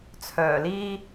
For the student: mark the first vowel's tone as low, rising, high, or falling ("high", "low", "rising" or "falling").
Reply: low